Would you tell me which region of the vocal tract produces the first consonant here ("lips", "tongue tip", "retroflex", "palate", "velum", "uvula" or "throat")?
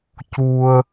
palate